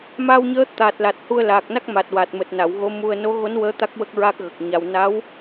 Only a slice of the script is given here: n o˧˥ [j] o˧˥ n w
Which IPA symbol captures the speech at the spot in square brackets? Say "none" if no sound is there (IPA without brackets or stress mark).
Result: ɣ